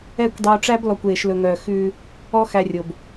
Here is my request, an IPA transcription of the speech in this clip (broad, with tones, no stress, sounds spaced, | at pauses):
ɛ˦˨ kʷ dˤ uː˨ ʈ͡ʂ æ˦ b l ɔ˨ kʷ eː˨ ʃ l ɵ˨ ŋ œː˨ x ʉː˧ | ɔ˦ x æ˧ rʲ o˨ b